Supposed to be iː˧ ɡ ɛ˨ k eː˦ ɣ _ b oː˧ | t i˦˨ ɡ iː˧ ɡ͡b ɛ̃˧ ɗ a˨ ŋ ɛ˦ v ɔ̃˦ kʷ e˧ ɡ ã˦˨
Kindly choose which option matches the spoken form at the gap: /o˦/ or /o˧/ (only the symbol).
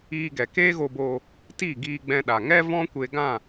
o˧